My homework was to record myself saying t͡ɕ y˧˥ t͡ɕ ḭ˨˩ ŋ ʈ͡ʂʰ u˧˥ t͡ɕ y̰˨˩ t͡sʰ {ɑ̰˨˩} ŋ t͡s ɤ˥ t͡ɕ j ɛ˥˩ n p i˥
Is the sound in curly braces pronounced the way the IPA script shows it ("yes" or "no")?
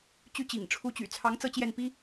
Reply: no